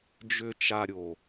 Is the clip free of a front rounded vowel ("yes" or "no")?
no